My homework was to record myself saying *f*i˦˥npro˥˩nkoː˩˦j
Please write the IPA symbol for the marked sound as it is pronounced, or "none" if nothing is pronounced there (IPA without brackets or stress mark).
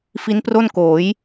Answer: f